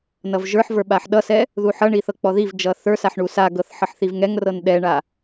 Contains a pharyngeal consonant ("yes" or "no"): yes